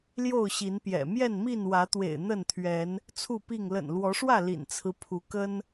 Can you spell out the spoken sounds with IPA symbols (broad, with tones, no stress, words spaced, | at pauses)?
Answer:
ljo˥˨ʊ̯ɕi˨˦npjɛ̰˨˩ mjɛ˥˨nmi˥˨nwä˨˦t̪wḛ˨˩ɪ̯ n̪ə˥˨nt̪ʰɥɛ˨˦n | t͡sʰu˥˨pi˥˨ŋ lə̰˨˩nlwɔ˨˦ʂwä˥˨ lḭ˨˩nt͡sʰɹ̩˦ pʰu˨˦kə˦n